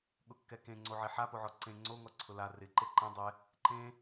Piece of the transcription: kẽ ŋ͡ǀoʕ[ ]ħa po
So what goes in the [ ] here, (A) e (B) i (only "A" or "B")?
A